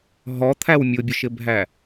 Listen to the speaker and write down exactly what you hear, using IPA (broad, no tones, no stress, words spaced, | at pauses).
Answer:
ɦɔt̪ʰæw mʲʊbʲʊʃɪbʱæ